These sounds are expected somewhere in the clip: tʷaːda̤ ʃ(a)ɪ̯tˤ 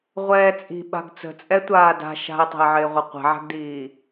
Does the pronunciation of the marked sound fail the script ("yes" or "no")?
yes